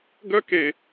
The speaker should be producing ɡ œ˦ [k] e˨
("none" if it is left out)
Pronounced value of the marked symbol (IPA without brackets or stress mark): k